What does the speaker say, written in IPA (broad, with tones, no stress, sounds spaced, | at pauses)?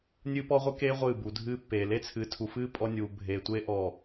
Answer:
nʲ ɨː˦ p ɔ˦ ʁʷ ɨ˦ k eː˦ ʁʷ ɨː˦˨ b u˨ dʱ ɨː˦ pː eː˨ l e˦ t͡sʰ ɨː˨ tʰ u˨ f ɨː˦ pʼ ɔ˦ nʲ uː˨ bʱ eː˨ tʷ eː˦ ʔ ɔː˨